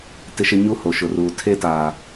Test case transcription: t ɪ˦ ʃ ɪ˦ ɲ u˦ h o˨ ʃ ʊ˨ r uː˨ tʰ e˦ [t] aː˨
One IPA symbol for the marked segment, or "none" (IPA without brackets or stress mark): t